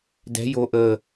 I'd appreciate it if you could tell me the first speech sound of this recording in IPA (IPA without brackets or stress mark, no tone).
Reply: d